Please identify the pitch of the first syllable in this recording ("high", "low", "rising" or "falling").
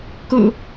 low